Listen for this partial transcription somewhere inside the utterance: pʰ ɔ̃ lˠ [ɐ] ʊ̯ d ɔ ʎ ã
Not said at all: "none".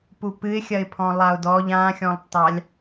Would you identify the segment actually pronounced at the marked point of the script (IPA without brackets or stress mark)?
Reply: a